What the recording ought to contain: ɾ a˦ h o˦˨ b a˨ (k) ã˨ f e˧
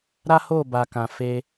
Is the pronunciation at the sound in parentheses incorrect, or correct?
correct